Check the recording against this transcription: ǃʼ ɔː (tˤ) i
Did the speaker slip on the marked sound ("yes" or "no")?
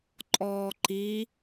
yes